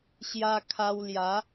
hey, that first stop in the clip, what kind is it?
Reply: aspirated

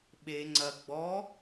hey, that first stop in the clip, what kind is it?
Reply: implosive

